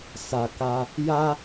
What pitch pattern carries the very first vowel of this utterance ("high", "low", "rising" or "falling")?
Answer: low